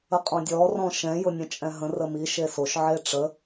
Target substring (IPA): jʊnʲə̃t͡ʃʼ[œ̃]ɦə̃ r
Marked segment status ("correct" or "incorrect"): incorrect